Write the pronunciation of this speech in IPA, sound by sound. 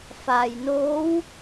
f a˩ j n oː˧˥ w

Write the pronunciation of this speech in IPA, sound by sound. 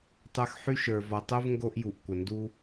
tˤ ə˞˦ x ħ y˥ ʃ ə˞˨ v ɔ˨ tˤ u˥ v ŋ ɡ o˥ ʔ j u˨ ʔ kʷ ə˩ n d u˥

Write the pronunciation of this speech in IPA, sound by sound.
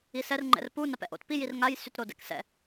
i s ɛ r ŋ͡ǃ ɛ̰ r p u n a p ɛ̰ ʔ o̰ t p i j i r ŋ a j s y t ɾ o d ɛ̰ k s ɛ̰

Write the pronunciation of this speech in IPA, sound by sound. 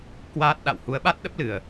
k w aː˦˥ t̚ ɗ a̰˧˨ w h u˨˦ ə̯ ɓ a˦˥ t̚ ɗ ə˦˥ p̚ l ɨ˨˩ ə̯

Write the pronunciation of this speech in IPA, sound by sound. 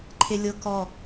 ǃʰ e lʲ ɤ k ɔ

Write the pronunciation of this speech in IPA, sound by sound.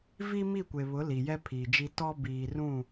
v i˦ m i˦˨ kʷ e˨ β ʊ˨˦ l i˨ j ɛ˦ pʰ iː˨ d͡ʒ i˦ t ɔ˦ b iː˨ r ũ˦˨

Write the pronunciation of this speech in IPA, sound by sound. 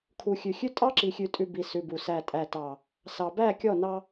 kʰ u˨ xʲ ʉ˨ xʲ ʉ˦ tʼ ɑ˦ ǁ i˨ xʲ ʉ˨ tʼ ʉ˨ b i˨ s ʉ˨ b u˨ s æ˨ tʼ æ˨ t ɑ˨ | s ɑ˨ b æ˦˨ kʲ ɔ˦˨ n ɑ˦

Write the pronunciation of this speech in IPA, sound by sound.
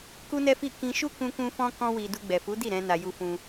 k u˦ n ɛ˦ f i˦˨ k ĩ˧ ʃ u˦ k ũ˦ k ũ˦ f ɔ̃˦ k ɔ̃˦ w i˧ d u˧ ɡ͡b ɛ˨ f u˨˦ d i˦˨ ɾ ɛ̃˧ n a˧ j u˦ f ũ˦

